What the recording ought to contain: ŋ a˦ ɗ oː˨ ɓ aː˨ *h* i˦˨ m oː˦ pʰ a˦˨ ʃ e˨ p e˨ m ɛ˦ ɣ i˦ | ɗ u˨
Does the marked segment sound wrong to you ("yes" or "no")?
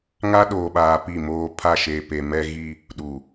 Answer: yes